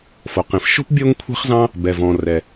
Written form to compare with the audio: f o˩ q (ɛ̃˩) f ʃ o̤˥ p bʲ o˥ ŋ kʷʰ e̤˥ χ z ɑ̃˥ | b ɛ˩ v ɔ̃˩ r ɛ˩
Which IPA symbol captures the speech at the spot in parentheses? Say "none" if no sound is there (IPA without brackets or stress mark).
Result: ẽ˩